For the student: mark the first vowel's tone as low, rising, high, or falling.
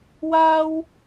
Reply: high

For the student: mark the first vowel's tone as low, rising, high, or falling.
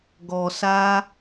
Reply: low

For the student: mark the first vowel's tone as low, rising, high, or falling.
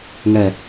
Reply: low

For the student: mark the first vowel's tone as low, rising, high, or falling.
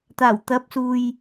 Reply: low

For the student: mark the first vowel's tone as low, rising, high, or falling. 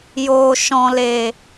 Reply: low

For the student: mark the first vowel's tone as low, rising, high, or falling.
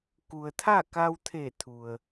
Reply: low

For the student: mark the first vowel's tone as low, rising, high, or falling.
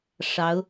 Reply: rising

